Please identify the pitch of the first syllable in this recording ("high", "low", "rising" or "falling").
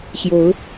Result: rising